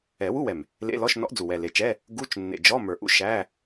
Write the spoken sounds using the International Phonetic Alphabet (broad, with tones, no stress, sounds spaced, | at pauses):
ɛ˨˩˦ w u˧˥˧ w ɛ˨˩ m | l ḛ˧˥˧ l ɔ˧˥˧ ʃ n ɔ̰˧˥ ʔ d͡z u˨˩ w ɛ˨˩ l e˨˩ t͡ʃ ɛ˧˥˧ | ɡ u˧˥˧ t͡ʃ nː ḛ˨˩ d͡ʒ ɔ˧˥˧ m ə˞˨˩ ʔ ṵ˧˥˧ ʃ æ˧˥˧